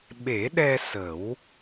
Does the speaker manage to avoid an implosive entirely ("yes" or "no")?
no